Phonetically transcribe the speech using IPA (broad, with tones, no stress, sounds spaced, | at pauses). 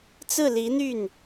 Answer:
t͡s ɹ̩˥˩ l i˧˥ n̪ y˥˩ n